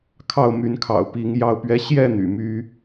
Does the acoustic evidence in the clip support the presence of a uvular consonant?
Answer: no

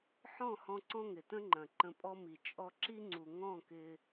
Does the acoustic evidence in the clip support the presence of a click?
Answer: yes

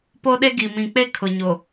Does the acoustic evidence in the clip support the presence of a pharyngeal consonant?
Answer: no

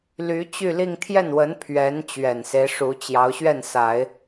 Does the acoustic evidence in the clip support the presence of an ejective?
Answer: no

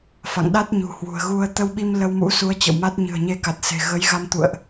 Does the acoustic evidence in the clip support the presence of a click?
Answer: no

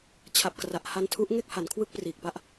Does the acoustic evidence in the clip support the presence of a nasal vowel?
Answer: no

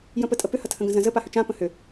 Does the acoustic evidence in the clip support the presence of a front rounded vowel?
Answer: yes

